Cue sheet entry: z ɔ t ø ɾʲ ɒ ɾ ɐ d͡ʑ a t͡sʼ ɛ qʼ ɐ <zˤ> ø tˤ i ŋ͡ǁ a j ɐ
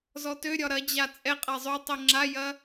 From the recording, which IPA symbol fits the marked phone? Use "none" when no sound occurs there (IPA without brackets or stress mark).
zˤ